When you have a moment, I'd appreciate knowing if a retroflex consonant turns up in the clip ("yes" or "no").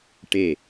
yes